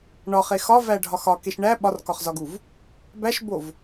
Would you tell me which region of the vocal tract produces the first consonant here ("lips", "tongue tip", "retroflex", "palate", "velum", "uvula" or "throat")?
retroflex